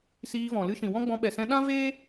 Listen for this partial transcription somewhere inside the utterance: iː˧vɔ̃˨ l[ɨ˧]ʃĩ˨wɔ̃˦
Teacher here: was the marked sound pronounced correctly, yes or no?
yes